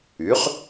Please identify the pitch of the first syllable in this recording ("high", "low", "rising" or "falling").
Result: rising